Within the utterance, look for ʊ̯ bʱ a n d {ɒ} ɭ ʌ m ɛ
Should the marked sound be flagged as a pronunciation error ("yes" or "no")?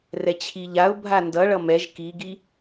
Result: yes